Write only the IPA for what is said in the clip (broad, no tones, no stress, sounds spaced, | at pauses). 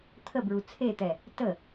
t̪ʰ ə b ɹ u t͡sʰ e t̪ ɛ | t ə